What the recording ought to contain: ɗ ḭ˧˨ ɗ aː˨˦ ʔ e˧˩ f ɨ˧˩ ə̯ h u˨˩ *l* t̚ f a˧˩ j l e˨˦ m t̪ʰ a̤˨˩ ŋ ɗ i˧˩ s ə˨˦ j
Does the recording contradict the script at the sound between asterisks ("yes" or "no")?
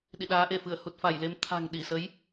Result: yes